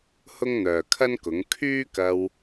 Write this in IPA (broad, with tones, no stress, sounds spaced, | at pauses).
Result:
h ʊ˥ ŋ n̪ œː˨ kʰ ɐ˥ n k ʊ˨˥ ŋ kʰ yː˥ k ɐ˧ w